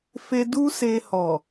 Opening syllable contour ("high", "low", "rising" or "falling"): high